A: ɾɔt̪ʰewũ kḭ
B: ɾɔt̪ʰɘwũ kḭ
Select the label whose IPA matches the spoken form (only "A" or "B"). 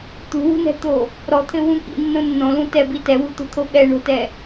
B